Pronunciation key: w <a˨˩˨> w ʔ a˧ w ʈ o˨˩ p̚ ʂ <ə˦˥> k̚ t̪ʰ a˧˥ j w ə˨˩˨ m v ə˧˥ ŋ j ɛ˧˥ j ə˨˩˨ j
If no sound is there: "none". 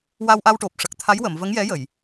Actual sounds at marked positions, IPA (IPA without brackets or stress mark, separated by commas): a˧, ə˨˩